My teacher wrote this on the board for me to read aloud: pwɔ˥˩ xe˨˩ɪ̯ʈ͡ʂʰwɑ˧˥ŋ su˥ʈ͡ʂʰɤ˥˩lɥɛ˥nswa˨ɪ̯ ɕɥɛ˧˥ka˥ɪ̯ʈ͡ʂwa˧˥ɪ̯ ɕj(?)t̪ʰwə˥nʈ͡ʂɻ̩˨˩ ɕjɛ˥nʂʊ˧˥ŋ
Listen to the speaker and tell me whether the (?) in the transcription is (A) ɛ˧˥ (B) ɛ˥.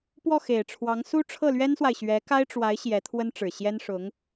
A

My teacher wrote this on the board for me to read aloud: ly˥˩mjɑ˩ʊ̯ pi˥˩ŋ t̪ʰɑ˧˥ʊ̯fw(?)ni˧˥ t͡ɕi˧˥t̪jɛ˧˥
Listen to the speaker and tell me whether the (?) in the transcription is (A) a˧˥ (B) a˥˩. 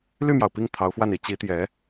B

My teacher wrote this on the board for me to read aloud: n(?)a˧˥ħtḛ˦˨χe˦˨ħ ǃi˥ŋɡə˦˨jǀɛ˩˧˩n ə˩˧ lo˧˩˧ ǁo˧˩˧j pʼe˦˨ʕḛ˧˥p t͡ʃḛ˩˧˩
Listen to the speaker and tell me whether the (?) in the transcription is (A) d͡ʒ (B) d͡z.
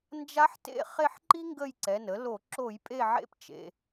A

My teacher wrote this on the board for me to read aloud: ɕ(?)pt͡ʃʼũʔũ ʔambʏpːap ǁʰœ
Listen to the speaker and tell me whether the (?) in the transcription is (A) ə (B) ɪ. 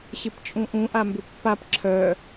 B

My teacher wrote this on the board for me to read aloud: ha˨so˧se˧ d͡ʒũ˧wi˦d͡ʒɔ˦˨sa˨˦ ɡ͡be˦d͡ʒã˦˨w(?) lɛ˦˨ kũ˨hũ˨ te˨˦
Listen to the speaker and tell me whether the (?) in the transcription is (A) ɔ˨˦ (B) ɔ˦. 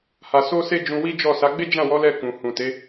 A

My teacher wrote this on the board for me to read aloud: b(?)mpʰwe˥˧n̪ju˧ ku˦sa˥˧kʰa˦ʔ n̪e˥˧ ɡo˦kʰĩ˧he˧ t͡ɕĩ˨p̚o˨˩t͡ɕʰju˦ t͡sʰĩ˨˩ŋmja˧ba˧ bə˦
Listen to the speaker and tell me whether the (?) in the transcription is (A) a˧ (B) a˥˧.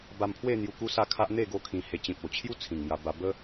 A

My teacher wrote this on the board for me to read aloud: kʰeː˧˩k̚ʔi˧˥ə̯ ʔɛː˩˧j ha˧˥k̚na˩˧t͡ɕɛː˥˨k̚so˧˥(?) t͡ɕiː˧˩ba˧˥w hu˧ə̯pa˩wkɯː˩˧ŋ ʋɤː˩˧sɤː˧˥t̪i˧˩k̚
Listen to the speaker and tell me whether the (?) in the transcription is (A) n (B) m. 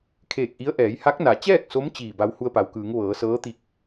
B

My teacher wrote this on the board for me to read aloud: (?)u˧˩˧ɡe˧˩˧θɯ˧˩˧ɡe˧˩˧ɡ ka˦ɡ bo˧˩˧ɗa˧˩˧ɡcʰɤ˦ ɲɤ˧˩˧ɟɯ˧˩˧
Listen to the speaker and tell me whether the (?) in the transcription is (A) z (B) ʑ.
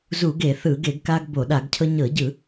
A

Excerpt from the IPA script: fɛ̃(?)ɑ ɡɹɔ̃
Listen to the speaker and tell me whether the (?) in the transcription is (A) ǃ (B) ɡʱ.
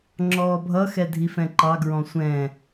A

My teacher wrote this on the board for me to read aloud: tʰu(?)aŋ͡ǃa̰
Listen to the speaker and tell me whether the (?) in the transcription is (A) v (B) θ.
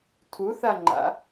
B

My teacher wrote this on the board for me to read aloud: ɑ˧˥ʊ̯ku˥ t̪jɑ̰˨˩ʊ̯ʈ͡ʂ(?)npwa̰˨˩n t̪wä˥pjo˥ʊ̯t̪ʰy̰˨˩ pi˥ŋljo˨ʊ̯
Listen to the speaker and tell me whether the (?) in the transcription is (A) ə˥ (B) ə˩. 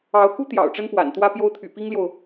A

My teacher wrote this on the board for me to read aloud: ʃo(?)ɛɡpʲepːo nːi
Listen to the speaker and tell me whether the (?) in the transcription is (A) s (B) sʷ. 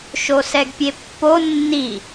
A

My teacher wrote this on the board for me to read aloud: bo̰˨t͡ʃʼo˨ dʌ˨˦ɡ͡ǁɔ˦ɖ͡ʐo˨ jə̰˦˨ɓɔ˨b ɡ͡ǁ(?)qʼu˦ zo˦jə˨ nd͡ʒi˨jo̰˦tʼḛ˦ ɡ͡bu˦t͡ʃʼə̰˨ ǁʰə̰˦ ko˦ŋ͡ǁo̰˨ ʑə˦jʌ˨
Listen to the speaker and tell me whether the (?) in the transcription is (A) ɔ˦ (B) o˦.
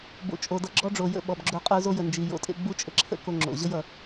B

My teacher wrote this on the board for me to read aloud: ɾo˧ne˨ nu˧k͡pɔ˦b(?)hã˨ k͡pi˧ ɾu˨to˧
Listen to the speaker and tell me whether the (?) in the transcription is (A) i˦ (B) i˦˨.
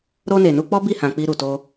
B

